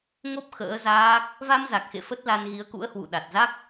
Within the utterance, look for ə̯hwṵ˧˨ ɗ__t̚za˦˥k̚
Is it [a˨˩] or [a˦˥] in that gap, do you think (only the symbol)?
a˨˩